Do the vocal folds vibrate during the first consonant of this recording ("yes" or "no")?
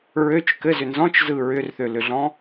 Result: yes